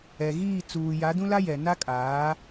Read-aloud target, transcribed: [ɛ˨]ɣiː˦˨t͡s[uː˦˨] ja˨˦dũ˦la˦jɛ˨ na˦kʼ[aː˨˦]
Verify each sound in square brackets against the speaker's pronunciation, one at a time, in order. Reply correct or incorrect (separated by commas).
correct, incorrect, correct